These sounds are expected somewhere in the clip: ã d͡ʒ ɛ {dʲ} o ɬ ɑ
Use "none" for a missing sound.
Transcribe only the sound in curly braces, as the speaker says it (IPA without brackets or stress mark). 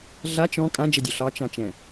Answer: dʲ